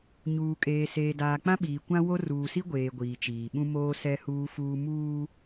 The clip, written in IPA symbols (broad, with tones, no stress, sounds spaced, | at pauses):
ɲ uː˨ kʼ eː˨ s eː˨ d aː˨ k͡p ã˦ ɓ iː˨ kʷ ã˦ w o˦ r uː˨ s i˦ ɡʷ eː˨ ɡʷ iː˨ t͡ʃ iː˨ ɓ ũ˦ m oː˦ s ɛ˦ h uː˦ f uː˦ m uː˦